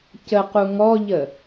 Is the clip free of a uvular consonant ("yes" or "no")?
no